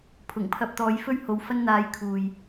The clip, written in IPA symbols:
pʰ ʊ˨˩ ŋ pʰ ɐ˧ p̚ t̪ ɔː˨˧ j f ɵ˥ ɥ h o˨˧ w f ɐ˥ n n̪ aː˧ j kʰ uː˨ j

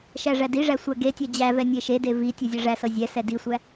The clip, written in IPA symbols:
ʃ æ ʐ æ d i ʐ æ sʷ æ ɡ e tʲ æ d͡ʑ æ v ɛ nʲ e ʃ e d e v i tʲ ɤ zʲ æ ʐ æ s ɤ zʲ ɛ s ɛ d i sʷ æ

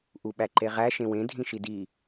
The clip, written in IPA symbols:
ʔ u ɓ æ ǃ e ʁ æ ʃ ẽ w ẽ dʱ ĩ ʃ i d i

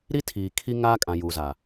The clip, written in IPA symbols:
ɾ i˦ tʰ iː˨ kʰ i˦ ŋ aː˦ kʼ ã˨ j u˨ z a˨

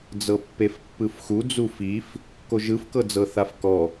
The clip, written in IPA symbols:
d͡z ɤ pː e f pː ɯ f x u d͡z u f i f | k o ʒ ɯ f k ɤ d͡z ɤ θ a f k ɔ

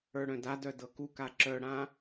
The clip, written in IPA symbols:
ə˞ ɽ œ̃ d a d œ d ɤ k u k a ǁ œ ɽ ã

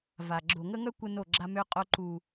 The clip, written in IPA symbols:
v a˨ ɡ͡ǁ o˨ ŋ ə˦ ŋ œ˦ kʷ ə˦ n o˦˨ ɡ͡ǁ a˦ m ø˦ qʼ o˦ ǃ u˦

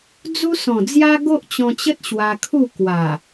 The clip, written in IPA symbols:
d͡z u˦ s ɔ̃˨˩ d͡z j a˦ ɡ o˦ ʔ t͡ɕ ɔ̃˧ t͡ɕ ə˦ t̚ ɕ w a˧ kʰ u˥˧ k w a˨˩

